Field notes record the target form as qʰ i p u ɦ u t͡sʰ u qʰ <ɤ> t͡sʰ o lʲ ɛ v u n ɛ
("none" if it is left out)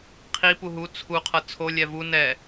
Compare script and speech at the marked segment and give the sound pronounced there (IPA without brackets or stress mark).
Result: ɤ